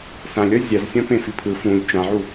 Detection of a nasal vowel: present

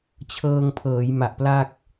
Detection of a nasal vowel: absent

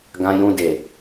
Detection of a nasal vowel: present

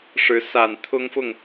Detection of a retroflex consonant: present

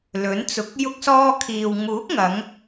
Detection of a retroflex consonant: absent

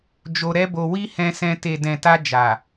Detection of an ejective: absent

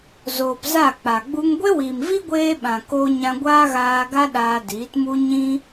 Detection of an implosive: present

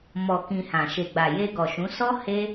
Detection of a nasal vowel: present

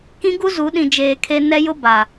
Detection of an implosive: present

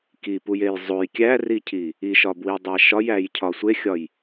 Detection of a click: absent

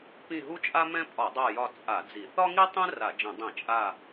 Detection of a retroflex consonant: absent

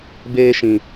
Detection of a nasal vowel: present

